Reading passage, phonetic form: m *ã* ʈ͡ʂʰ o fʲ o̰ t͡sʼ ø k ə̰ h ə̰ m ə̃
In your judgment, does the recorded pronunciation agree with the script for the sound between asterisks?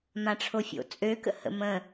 yes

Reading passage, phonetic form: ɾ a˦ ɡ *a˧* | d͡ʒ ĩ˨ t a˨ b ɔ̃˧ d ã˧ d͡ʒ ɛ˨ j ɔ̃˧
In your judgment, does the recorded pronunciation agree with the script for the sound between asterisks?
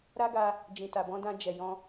yes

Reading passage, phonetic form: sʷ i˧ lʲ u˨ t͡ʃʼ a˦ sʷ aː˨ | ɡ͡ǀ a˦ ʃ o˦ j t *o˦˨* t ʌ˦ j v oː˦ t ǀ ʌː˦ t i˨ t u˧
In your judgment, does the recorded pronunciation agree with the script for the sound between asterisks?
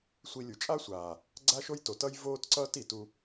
no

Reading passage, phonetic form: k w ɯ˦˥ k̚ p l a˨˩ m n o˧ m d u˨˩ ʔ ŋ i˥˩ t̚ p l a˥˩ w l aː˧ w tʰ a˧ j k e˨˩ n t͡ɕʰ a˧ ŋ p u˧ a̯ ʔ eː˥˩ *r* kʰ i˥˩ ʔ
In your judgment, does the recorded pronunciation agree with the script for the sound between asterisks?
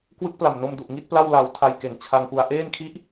no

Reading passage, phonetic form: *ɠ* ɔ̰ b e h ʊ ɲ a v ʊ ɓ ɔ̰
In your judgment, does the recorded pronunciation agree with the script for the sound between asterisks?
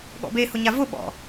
yes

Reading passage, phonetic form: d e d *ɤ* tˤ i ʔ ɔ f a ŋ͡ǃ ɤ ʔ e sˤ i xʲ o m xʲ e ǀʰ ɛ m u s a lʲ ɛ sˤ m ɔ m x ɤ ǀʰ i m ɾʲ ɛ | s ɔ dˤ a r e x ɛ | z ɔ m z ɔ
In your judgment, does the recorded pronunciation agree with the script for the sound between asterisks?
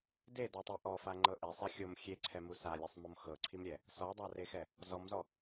no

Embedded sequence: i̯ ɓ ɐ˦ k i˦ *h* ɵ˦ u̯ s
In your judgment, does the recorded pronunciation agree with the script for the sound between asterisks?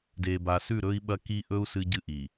no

